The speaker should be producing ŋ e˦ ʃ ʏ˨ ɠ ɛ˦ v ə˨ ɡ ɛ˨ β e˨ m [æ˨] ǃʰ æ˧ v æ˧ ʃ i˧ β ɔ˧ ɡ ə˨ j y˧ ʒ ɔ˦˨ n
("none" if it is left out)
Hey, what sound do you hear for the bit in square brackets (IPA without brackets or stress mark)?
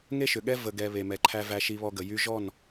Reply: ɛ˨